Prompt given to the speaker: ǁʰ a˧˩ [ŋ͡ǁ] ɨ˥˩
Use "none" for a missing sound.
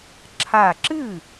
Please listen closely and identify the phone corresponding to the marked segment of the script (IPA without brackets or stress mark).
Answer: ǁ